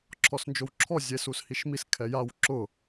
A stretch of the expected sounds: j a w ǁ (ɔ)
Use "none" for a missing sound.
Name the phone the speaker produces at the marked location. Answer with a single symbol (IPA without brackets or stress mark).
ʊ